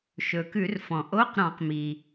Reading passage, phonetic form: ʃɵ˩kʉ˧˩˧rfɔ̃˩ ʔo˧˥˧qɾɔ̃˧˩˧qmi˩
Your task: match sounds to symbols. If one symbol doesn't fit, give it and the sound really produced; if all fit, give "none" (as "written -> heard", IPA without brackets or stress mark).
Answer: none